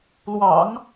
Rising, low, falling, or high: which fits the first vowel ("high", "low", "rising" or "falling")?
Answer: low